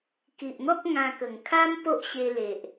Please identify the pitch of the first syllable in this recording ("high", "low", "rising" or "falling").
low